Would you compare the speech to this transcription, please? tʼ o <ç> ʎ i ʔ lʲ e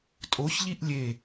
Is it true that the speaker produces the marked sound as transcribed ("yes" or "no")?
yes